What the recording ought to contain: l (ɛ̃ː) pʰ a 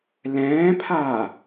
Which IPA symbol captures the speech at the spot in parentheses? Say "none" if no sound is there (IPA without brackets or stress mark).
ɛ̃ː